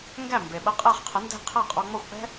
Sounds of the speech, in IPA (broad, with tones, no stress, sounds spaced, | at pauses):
ŋ ɡ æ˥˩ m b e˩ ɓ ə˧ qʼ ɛ˥˩ χ qʰ ə˩˥ n d ɛ̤˥˩ qʰ æ˥˩ qʼ ɔ˧ ŋ͡m ɔ˥˩ xʷ k͡p ɛ̤˥